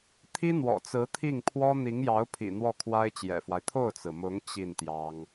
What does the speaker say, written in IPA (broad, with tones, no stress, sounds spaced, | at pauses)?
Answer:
t̪ʰ i˥ n̪ w ɔ̰˨˩ t͡s ɹ̩˧˥ t̪ʰ i˥˩ ŋ pʰ w ɔ˥ n̪ i˧˥ ŋ j ɑ˧˥ ʊ̯ pʰ ḭ˨˩ n̪ w ɔ˥˩ kʰ w a˥ ɪ̯ t͡ɕ j ɛ̰˨˩ f w a˦ ɪ̯ t̪ʰ o˥˩ ʊ̯ t͡s ɹ̩˩ m ʊ˧˥ ŋ t͡ɕ i˥˩ n t̪ j ɑ˥ ŋ